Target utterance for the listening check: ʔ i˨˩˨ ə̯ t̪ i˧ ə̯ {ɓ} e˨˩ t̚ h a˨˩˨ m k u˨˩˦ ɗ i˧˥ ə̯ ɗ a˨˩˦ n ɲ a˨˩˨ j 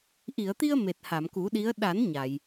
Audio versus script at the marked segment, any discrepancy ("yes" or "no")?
yes